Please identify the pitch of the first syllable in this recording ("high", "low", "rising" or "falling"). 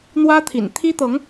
high